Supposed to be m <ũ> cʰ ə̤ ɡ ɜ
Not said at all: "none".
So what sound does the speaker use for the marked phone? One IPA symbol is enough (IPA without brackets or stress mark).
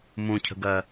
ũ